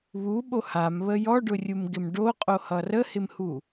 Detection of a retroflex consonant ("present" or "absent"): present